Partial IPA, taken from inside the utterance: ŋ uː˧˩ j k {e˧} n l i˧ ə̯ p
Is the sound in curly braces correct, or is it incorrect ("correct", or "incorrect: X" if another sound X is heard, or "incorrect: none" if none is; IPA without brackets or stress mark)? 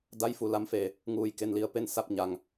correct